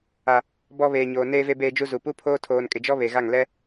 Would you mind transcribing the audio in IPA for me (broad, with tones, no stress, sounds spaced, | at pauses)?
a˨ | b ɔ˨ β eː˨ ɲ oː˨ n eː˨ v e˨ b eː˨ d͡ʒ u˨ z u˨ p u˦ pʰ oː˦ tʰ oː˨ n kʼ ɪ˨ d͡ʒ ɔ˦ β e˨ ɣ a˦˨ ŋ l ɛ˦